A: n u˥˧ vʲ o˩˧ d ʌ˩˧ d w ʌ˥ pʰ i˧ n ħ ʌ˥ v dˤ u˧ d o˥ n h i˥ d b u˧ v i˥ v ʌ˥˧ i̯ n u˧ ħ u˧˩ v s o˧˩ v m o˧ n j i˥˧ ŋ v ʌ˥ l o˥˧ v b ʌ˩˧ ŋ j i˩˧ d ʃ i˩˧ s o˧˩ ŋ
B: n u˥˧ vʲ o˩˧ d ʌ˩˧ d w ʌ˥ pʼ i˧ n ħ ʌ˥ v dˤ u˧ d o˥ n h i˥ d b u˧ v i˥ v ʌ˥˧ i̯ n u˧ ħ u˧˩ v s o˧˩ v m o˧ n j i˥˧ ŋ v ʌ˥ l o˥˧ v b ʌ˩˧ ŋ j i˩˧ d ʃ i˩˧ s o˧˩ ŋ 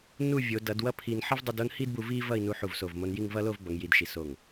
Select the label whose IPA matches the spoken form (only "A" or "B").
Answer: A